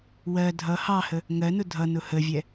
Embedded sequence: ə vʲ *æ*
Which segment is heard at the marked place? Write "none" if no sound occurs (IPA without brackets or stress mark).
ɛ